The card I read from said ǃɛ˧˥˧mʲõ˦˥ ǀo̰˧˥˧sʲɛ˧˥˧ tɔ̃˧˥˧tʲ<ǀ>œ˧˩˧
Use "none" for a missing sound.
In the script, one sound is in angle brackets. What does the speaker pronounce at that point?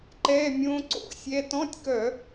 k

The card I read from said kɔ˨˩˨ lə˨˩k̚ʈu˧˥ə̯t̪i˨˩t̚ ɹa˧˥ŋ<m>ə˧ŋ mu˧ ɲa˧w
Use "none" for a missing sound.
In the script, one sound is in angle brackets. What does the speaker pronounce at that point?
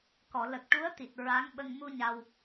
ɓ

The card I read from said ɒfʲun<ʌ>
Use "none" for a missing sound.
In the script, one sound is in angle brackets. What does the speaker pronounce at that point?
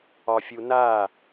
a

